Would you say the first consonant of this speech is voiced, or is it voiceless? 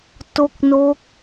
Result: voiceless